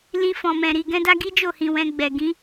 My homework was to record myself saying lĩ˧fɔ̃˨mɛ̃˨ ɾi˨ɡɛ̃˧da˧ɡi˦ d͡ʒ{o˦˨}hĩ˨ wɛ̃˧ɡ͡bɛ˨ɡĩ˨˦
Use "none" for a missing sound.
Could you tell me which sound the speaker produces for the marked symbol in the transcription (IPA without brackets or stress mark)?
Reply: o˦˨